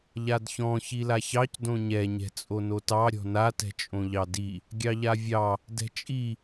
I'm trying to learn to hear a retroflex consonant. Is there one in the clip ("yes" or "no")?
no